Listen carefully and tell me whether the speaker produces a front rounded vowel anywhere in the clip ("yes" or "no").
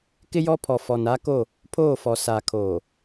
no